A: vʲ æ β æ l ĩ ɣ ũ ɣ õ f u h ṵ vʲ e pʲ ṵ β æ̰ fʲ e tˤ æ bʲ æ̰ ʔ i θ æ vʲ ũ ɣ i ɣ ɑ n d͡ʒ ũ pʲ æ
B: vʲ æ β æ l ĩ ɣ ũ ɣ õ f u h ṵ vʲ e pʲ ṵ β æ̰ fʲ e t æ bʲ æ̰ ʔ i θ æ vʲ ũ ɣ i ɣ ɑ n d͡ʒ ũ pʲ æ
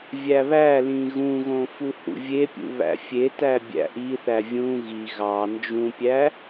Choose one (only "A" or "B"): B